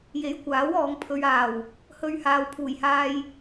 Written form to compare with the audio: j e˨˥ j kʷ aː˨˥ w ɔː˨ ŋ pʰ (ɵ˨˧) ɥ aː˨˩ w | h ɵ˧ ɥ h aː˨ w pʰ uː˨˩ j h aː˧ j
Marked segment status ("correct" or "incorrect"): incorrect